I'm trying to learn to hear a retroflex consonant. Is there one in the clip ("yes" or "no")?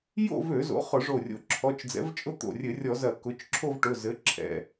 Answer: yes